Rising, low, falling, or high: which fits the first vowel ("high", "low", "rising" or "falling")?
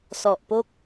low